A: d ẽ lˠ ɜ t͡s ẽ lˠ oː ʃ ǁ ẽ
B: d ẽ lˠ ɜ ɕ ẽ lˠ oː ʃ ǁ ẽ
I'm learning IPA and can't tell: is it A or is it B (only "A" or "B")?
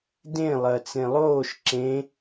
A